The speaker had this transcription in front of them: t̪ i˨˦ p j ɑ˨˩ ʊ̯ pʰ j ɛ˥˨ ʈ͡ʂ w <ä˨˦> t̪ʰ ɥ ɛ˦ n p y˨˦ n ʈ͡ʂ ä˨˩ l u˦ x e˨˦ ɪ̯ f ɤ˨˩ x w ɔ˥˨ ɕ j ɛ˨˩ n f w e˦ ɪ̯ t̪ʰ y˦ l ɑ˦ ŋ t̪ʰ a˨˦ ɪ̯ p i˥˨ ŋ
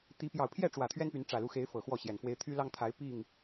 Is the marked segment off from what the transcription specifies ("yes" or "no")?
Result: yes